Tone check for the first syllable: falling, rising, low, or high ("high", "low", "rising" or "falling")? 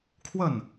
falling